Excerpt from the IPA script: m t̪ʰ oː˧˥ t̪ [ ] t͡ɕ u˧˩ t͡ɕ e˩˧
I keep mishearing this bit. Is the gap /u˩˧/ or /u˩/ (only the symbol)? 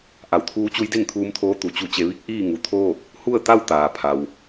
u˩